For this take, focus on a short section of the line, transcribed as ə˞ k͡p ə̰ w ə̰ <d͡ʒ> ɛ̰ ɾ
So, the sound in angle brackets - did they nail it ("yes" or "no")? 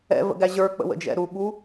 yes